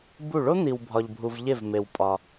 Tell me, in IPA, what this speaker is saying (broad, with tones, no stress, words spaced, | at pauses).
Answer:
bu˧˩ ɭo˥n̪i˩w bʱɒ˩ʎbʱu˩v ʎe˧˩vme˩wpʼɒ˩